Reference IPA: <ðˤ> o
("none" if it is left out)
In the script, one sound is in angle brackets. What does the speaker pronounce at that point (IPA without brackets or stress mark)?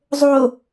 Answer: zˤ